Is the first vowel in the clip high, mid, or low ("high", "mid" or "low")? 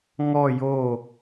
mid